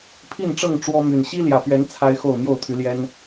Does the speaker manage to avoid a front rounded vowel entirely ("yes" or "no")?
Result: no